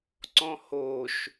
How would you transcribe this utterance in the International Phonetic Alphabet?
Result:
ǀ ɔ̃ h o ʃ

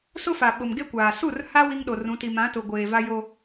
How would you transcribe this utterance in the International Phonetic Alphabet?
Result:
s ʊ˦ f a˨ ɓ ʊ˨ m ɡ e˦ kʷ aː˨ s u˦˨ r h a˦ w i˦ ŋ ɗ o˨ r ũ˨˦ t i˨ m ã˨˦ t ʊ˨ ɡʷ eː˨ v a˦ j o˦

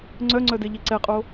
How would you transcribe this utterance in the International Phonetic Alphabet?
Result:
ŋ͡ǀ œ ŋ͡ǀ œ d e ʎ e ǀ ɛ qʼ o

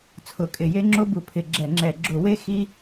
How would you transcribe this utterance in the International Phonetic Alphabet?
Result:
t͡sʰ ʊ˧˩˧ kʼ ɪ˧˩˧ j e˥ ŋ͡ǁ o˥ b u˧˩˧ pʰ ɪ˧˩˧ ɡ͡ǁ ɛ˧˩˧ ŋ͡ǁ ɛ˧˩˧ ɡ͡ǁ ʊ˧˩˧ w e˥ x i˥

